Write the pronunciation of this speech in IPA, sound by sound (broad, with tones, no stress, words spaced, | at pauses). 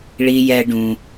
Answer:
ɭi˨jɛ˨ ɖũ˨